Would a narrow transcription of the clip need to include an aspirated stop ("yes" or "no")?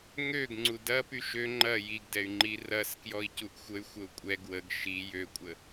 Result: no